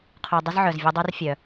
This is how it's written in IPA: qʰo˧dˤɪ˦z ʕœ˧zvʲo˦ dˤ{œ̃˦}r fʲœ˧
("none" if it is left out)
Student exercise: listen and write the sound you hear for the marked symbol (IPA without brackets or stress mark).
œ˦